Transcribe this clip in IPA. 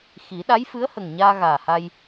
x i˨˩˦ ɗ a˧˥ j f ɨ˧˥ ə̯ h ə˨˩ ŋ ɲ aː˧ ɣ aː˨˩ h a˧ j

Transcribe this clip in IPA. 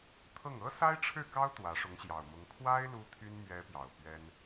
t̪ʰ ɤ˥˩ ŋ ɤ˥ s a˥ ɪ̯ ʈ͡ʂʰ ɻ̩˥˩ k ɑ˥ ʊ̯ t̪ w ä˧˥ ʂ ʊ˧˥ ŋ ɕ j ɑ˨˩ ʊ̯ m ʊ˧˥ ŋ kʰ w a˥ ɪ̯ l u˥ t̪ʰ y˥ n m ɥ ɛ˧˥ p j ɑ˨˩ ʊ̯ p ɥ ɛ˥ n

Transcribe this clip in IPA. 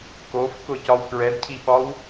k o f k ʊ c ɒ w k ɹ ɛ d cʰ i ɓ ɒ w

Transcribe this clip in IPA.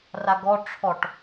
r a ɡ ɔ ʈ͡ʂʰ ɔ ʈ

